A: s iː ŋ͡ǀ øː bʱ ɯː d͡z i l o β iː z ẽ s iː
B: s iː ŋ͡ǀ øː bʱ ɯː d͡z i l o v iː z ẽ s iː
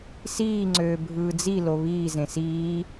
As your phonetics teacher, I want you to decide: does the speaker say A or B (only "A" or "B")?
A